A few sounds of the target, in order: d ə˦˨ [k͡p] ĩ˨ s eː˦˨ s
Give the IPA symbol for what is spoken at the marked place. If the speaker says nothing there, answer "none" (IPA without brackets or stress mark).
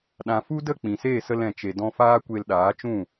k͡p